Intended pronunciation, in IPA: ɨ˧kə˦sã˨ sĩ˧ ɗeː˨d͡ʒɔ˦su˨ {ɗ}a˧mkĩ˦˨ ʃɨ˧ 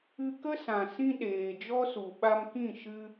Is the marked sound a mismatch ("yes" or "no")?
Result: yes